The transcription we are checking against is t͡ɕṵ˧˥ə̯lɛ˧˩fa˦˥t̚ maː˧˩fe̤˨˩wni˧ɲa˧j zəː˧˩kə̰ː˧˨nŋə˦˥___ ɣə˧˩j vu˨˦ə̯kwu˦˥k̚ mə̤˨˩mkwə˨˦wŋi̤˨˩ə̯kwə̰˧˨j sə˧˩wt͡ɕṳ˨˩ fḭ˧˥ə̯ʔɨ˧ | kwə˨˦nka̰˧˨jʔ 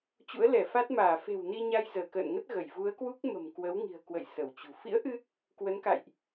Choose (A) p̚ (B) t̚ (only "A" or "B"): B